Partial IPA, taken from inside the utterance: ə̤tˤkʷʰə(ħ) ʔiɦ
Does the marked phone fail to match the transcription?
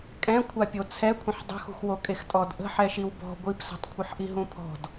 no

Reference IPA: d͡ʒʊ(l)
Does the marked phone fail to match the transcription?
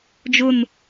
yes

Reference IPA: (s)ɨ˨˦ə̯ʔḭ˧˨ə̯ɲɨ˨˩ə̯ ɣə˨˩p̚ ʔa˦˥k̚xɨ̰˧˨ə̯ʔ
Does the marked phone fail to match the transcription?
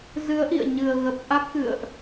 yes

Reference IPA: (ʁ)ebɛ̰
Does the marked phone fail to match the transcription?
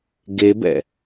yes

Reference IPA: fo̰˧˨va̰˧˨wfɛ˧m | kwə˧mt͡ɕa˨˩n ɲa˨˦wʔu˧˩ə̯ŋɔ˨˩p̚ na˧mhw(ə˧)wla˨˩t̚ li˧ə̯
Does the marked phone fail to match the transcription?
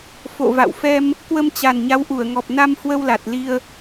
no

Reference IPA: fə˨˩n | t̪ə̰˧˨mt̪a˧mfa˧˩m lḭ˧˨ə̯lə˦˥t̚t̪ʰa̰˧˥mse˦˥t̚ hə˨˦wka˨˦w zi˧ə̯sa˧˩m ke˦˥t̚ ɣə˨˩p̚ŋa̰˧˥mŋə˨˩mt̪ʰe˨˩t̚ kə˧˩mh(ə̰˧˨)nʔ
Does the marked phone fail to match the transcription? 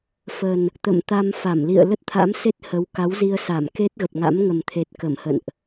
no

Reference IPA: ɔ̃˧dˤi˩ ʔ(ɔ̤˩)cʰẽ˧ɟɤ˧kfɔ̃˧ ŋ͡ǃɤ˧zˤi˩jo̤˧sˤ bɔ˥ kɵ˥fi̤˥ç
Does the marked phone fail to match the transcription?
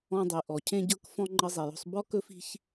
yes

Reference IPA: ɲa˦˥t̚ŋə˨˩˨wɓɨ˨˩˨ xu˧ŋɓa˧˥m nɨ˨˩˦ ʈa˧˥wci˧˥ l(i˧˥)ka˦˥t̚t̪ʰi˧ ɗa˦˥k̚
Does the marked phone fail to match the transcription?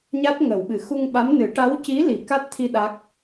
yes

